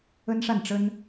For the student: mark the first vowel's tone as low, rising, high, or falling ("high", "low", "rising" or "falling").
high